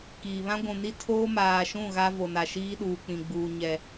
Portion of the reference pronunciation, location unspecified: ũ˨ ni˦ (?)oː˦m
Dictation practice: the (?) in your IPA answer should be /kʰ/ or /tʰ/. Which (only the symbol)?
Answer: tʰ